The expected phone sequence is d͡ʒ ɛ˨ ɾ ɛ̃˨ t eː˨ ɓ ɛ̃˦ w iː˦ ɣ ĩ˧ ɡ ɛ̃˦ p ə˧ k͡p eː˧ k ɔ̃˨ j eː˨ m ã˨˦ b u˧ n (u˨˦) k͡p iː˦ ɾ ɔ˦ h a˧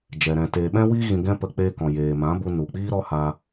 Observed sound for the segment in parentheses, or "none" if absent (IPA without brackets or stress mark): u˨